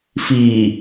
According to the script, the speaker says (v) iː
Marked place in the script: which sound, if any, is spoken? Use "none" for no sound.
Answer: f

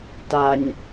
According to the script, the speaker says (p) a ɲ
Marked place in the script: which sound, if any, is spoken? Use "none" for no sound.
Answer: t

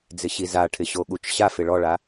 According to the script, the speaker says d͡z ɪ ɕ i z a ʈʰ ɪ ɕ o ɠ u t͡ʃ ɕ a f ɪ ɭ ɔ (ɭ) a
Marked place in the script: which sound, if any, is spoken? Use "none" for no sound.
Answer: ɭ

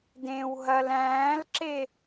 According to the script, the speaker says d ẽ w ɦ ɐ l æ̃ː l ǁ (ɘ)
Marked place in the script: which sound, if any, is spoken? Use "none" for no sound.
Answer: e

